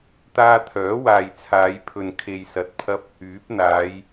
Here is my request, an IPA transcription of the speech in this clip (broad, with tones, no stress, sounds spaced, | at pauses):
t̪ aː˧ t̪ʰ œː˨˥ w aː˨ j t͡sʰ aː˨˧ j pʰ ɵ˨ n kʰ e˨ j s ɐ˨ t̚ pʰ ɐ˧ p̚ | yː˨˥ p̚ n̪ aː˨˧ j